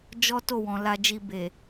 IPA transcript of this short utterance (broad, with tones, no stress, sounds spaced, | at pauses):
d͡ʒ ɔ˦ t o˦˨ w ɔ̃˨ l a˧ d͡ʒ i˧ b e˨